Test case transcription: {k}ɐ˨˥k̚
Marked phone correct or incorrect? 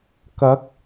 correct